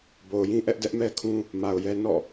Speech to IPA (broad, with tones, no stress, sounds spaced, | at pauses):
b o˨ ʊ̯ j ĩ˦ ʔ ɛ˦ ʔ d ɛ˦ ʔ m ɛ˦ kʰ ũ˦ | m a˨ ʊ̯ j ɛ˦ n ɔ̰˦˨